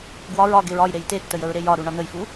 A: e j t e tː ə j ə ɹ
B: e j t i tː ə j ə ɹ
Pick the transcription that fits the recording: A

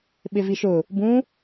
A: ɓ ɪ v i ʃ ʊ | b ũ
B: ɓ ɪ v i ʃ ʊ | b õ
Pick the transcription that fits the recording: A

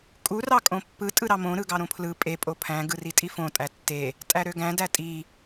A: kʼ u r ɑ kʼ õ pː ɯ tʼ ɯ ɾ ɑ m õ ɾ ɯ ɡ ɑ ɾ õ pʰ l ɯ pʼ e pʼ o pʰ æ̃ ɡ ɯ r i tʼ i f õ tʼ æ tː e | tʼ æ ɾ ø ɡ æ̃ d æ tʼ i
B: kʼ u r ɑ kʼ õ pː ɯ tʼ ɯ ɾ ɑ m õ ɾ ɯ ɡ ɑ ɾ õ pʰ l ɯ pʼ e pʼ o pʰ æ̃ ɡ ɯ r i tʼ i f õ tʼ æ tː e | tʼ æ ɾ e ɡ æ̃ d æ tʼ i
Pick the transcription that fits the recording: A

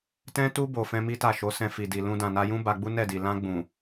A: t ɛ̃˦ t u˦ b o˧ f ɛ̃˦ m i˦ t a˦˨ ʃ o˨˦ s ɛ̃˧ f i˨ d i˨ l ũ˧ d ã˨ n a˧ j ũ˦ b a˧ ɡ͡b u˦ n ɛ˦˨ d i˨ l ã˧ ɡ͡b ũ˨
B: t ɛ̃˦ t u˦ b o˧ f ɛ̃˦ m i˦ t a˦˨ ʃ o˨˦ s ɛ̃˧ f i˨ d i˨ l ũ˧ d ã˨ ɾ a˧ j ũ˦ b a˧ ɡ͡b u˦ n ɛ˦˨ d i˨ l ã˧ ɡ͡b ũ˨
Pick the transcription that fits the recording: A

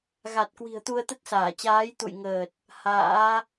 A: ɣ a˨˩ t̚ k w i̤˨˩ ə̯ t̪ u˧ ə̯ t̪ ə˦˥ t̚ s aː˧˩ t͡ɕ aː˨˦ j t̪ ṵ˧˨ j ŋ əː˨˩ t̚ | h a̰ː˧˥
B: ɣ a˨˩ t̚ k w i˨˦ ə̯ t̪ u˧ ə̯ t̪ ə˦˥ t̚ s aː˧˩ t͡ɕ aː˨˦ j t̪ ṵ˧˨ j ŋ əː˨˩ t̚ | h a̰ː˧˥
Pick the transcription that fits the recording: A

